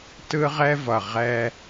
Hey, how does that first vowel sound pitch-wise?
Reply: high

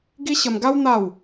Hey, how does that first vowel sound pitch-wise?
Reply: high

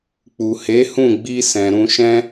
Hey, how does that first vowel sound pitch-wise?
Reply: low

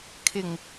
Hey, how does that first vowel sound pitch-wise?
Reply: low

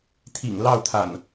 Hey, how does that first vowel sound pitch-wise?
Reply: low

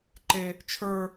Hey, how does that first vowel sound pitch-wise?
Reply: high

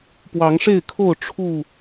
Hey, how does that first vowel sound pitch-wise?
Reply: rising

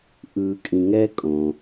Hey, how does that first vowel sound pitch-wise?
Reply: low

